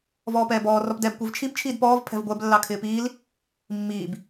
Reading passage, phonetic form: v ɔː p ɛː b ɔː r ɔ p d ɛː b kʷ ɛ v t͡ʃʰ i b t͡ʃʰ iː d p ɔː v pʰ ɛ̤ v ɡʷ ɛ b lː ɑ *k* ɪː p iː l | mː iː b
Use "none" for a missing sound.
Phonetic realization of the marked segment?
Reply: kʰ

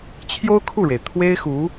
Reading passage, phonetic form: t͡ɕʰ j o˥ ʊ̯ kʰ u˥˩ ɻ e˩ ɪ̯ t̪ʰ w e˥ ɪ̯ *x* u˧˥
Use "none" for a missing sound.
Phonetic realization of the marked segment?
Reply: x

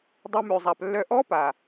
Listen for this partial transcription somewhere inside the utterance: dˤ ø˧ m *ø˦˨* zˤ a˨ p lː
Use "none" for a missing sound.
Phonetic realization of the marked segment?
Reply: ø˨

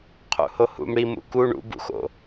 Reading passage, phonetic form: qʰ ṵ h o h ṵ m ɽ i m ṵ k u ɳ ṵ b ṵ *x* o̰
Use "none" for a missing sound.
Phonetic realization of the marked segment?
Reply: x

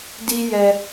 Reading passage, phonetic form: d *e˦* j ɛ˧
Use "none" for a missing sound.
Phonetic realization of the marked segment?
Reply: i˦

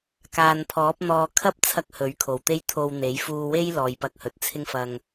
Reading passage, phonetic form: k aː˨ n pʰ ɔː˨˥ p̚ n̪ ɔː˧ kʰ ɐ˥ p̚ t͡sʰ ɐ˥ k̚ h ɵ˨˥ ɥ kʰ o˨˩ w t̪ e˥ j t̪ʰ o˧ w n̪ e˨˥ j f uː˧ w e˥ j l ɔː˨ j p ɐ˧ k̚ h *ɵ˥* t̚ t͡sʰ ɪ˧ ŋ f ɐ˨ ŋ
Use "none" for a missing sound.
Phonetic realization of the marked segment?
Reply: ɵ˨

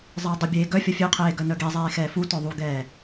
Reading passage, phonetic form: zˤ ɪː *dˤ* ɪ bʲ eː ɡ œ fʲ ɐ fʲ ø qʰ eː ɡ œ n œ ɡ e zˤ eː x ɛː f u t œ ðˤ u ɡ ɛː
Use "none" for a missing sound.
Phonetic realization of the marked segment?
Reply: dˤ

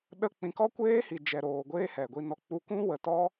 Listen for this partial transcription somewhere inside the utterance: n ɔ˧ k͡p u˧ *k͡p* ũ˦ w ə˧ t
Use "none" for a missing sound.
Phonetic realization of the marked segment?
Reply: k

